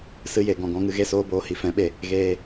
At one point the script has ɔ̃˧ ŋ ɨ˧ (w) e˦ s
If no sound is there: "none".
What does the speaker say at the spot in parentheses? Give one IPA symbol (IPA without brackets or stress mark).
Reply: ɣ